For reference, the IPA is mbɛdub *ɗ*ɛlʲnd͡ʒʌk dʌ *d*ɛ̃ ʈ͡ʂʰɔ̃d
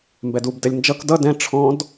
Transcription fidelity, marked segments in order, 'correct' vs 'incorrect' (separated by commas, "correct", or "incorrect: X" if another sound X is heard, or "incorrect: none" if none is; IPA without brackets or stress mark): incorrect: d, correct